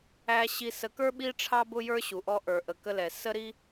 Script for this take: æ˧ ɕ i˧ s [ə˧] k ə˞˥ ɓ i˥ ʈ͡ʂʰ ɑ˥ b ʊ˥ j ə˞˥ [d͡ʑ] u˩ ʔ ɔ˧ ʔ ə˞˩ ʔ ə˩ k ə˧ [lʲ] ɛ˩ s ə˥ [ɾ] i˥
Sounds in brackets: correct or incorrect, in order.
correct, incorrect: ɕ, incorrect: l, correct

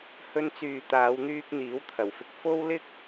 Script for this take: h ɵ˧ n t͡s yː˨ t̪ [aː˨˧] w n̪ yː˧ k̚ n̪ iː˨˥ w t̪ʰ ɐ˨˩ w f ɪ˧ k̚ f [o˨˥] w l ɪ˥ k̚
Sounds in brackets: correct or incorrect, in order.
correct, incorrect: o˥

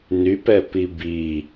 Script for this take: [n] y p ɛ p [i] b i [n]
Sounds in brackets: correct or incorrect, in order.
correct, correct, incorrect: none

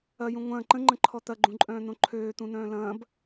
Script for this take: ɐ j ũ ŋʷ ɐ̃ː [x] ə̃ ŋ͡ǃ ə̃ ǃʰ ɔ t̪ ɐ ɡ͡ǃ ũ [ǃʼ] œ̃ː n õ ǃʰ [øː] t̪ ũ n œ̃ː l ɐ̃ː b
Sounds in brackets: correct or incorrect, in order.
incorrect: ǃ, correct, correct

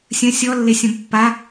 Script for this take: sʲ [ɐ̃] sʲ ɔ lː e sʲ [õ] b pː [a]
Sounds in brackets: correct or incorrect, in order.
correct, incorrect: ɔ̃, correct

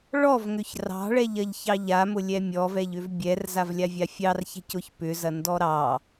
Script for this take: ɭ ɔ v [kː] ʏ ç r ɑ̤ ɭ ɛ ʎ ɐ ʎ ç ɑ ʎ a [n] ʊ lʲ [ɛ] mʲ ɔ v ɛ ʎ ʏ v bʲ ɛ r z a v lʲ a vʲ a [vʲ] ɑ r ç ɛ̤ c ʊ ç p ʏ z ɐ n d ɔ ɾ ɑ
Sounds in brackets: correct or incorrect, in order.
incorrect: ŋ, incorrect: m, correct, incorrect: fʲ

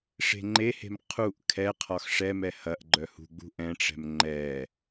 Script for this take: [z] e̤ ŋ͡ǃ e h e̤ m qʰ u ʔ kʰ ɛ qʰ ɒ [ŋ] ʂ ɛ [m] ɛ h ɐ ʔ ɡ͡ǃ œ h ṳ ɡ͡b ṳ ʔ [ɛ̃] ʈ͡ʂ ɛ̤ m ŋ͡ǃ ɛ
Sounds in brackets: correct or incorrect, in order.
incorrect: ʂ, incorrect: x, correct, correct

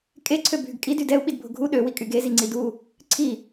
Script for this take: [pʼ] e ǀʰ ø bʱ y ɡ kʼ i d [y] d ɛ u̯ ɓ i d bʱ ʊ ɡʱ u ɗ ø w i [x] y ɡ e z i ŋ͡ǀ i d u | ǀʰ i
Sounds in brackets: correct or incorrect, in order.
incorrect: kʼ, correct, incorrect: kʼ

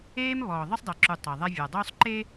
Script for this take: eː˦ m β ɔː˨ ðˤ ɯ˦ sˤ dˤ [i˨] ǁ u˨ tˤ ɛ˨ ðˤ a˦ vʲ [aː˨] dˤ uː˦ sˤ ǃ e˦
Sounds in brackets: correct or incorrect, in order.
correct, incorrect: a˨

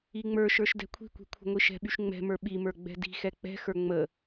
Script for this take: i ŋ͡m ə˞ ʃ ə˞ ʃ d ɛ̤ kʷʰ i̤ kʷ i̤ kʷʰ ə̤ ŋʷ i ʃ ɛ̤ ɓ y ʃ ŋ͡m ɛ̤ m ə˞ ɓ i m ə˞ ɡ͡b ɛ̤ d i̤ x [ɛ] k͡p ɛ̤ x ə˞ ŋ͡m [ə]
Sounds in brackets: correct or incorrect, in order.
correct, correct

